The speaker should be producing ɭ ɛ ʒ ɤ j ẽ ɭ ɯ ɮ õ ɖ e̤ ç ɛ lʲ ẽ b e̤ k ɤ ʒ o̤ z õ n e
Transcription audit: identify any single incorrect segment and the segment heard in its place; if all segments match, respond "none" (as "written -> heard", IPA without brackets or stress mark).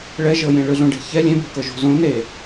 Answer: none